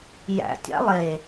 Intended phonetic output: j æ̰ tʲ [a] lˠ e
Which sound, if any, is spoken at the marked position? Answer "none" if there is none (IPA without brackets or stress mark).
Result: a̰